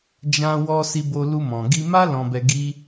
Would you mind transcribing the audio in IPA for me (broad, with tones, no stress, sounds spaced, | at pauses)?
d͡ʒ ã˧ w ɔ˧ s i˧ b o˧ l u˧ m ɔ̃˨ ɡ i˧ m a˦ l ɔ̃˧ b ɛ˧ ɡ i˦